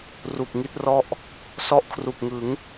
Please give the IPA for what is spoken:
r u˨˩ k̚ ŋ i˥˩ t̚ r ɔ˥˩ ʔ | s ɔ˦˥ ʔ kʰ r u˨˩ k̚ ŋ ɯ˩˦ ŋ

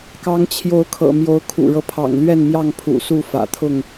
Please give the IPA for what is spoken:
k ɑ˨˦ ŋ t͡ɕʰ j o˨˦ ʊ̯ kʰ ɤ̰˨˩ m j o˨˦ ʊ̯ kʰ ṵ˨˩ ɻ ɤ˦ pʰ ɑ̰˨˩ ŋ l ɥ ɛ˥˨ n m j ɑ˥˨ ŋ pʰ ṵ˨˩ s u˥˨ f ä̰˨˩ t̪ʰ ʊ˥˨ ŋ

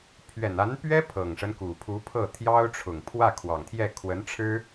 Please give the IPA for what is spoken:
pʰ ɥ ɛ˨˩ n a˧˥ n p ɥ ɛ˥ pʰ ɤ˨˩ ŋ ʂ ə˦ n k u˨˩ pʰ u˧˥ pʰ ɤ˥˩ t̪ʰ j ɑ˥ ʊ̯ ʈ͡ʂʰ ʊ˨˩ ŋ pʰ w ä˥˩ kʰ w ɑ˨˩ ŋ t̪ʰ j ɛ˥˩ kʰ w ə˧˥ n ʈ͡ʂʰ ɻ̩˥

